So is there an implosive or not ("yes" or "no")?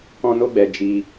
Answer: no